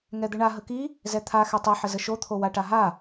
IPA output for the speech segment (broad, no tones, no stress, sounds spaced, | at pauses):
ŋ ɛ d̪ ɘ ɳ a ɦ ə k i | z ɛ t̪ʰ a x ɛ tˤ ɘ ħ ə z ə ʃ o t̪ʰ o w a ʈ a ɦ a